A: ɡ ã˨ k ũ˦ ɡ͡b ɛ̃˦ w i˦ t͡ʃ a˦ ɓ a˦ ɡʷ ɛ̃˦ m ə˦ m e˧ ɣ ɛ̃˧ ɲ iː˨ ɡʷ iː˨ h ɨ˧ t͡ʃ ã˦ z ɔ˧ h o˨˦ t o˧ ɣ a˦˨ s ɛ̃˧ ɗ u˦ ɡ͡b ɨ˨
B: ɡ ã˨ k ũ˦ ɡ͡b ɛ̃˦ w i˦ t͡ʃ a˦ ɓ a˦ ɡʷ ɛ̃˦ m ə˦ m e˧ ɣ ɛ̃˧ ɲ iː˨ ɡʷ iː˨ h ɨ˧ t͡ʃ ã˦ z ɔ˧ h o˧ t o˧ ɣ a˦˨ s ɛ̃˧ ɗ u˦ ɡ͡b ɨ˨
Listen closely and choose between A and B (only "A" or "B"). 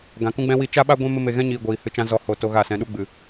B